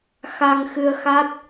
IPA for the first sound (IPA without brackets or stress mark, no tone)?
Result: x